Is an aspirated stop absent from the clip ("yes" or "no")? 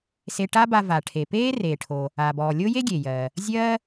no